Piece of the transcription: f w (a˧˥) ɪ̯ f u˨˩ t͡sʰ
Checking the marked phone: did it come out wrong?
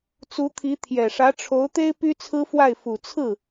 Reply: yes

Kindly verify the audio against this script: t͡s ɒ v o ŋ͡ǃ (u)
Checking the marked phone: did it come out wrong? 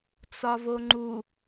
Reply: no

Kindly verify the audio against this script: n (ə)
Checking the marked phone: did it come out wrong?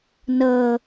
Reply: no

